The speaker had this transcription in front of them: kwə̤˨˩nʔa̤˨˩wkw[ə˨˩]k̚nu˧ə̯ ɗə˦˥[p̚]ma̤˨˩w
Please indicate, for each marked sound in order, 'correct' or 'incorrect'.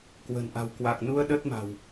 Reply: incorrect: a˨˩, incorrect: t̚

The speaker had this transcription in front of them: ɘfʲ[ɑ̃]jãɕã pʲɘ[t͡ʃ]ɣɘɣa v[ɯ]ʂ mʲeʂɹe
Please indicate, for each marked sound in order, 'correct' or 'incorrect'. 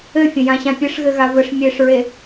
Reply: incorrect: ə̃, incorrect: ʂ, incorrect: ə

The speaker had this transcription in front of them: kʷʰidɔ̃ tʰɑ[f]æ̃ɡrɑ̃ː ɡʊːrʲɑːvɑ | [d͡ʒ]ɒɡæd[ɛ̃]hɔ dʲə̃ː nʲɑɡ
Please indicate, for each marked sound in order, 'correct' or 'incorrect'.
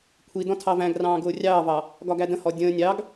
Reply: incorrect: v, incorrect: ɡ, incorrect: ə̃

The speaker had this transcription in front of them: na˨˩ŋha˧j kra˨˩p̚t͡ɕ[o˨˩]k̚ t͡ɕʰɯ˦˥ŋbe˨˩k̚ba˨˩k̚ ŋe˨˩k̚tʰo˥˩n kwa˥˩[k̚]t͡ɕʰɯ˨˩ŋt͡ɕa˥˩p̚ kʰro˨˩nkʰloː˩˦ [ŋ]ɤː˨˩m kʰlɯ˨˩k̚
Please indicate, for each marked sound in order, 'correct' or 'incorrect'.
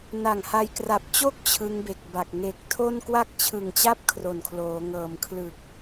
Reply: incorrect: o˥˩, correct, correct

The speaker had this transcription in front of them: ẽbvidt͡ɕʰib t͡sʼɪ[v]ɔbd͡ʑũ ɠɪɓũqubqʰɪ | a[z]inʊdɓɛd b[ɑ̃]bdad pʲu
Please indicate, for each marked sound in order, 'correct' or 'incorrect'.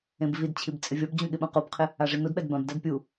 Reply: incorrect: vʲ, incorrect: ʐ, incorrect: ã

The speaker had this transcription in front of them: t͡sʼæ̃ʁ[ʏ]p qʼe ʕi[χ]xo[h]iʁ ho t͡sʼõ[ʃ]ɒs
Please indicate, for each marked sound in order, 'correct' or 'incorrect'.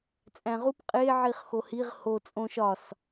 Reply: incorrect: u, correct, correct, correct

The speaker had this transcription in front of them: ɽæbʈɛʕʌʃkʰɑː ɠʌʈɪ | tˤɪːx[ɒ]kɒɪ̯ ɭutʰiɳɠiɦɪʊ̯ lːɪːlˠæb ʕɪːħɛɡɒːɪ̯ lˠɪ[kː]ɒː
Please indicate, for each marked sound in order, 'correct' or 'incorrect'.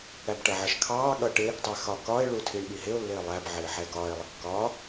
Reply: correct, correct

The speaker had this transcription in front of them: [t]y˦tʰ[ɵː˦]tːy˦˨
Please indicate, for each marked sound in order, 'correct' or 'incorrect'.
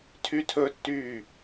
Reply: incorrect: tʰ, incorrect: ɵ˦

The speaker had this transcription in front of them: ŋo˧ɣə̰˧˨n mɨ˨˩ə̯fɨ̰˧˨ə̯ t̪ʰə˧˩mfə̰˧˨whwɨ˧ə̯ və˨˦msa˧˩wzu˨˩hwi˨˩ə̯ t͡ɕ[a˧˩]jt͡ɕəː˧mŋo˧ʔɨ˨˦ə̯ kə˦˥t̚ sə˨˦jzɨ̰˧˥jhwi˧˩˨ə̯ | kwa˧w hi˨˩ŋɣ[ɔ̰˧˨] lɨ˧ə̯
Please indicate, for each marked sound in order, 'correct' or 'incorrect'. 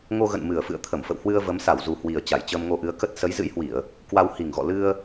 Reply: correct, correct

